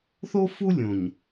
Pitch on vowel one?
high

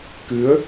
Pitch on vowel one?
rising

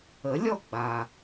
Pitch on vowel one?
rising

